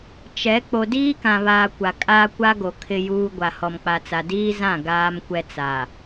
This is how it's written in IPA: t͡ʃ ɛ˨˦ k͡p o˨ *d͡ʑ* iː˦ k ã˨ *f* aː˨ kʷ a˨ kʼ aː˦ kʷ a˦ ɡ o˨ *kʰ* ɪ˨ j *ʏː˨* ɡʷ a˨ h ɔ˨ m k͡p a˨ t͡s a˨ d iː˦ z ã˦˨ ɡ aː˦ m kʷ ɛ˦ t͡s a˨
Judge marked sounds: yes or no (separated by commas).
no, no, yes, no